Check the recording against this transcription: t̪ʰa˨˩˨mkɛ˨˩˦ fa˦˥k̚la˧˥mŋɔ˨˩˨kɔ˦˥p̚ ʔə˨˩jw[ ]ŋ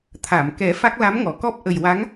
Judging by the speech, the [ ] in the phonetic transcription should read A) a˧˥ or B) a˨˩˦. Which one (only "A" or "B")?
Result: A